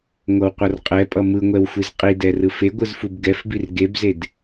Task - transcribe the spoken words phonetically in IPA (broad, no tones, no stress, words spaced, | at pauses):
ŋʷʌwqʷʌrqʼɛpʼʌ mɯŋʷɛwxʷiz qʼidɛrɯ feɡʷɯzfub ɡɛfbir ɡebzed